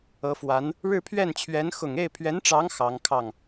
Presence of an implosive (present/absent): absent